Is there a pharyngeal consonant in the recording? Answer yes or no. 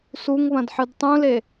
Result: yes